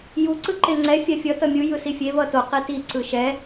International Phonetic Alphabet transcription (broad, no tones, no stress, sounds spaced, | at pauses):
j u ǀ ɯ ǃ e ŋ͡ǀ ɛ fʲ a fʲ ʌ t ʌ mʲ ɯ j ɯ s i fʲ e v ʌ t o q i t i ǀ ɯ ʃ ɛ